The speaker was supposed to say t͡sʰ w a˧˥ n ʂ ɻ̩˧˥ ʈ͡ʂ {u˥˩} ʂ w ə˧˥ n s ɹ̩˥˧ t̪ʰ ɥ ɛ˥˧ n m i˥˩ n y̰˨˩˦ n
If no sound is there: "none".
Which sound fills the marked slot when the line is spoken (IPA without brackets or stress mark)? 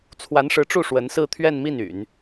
u˥˩